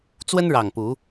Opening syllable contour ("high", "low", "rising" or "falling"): high